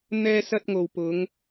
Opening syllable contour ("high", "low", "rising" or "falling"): high